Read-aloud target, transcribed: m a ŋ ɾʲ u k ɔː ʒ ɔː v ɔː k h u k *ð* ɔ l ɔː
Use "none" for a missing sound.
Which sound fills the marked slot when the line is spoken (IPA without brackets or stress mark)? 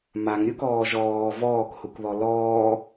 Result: ð